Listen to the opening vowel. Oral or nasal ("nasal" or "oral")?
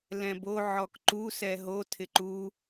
nasal